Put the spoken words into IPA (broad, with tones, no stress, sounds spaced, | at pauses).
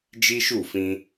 d͡ʒ i˦ ʃ u˦˨ f ĩ˧